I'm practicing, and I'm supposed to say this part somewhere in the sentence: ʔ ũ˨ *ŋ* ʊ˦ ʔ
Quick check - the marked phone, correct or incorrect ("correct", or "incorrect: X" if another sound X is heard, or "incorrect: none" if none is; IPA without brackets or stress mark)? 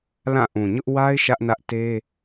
incorrect: ɲ